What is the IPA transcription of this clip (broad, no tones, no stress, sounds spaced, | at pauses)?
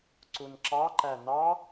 ǀ u n ǁ ɑ ǃ æ n ɑ